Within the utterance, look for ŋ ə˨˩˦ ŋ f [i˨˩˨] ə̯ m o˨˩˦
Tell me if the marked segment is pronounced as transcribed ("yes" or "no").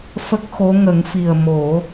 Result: no